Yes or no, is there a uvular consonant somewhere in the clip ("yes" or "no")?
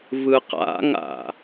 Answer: yes